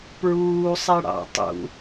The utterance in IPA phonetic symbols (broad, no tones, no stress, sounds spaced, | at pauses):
p ɹ uː sˤ ɛ ɽ ɑ̰ tˤ ṵ